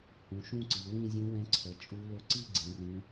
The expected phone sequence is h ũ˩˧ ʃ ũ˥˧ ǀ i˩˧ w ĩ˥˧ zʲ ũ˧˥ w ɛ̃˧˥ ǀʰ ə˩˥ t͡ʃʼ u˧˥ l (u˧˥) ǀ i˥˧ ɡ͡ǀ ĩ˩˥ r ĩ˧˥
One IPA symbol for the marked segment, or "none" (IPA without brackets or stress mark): ʊ˧˥